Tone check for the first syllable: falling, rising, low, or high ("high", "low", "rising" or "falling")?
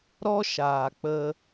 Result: high